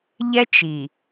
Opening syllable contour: high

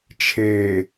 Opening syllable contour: low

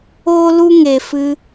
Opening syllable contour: high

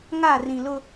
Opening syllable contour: falling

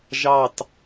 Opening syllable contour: falling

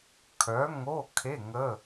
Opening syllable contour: rising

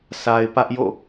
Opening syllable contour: low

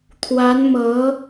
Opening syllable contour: rising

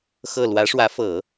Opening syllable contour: falling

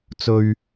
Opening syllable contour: low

